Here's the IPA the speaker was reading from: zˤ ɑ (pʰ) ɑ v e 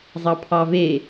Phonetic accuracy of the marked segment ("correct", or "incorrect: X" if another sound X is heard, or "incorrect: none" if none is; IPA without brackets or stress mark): correct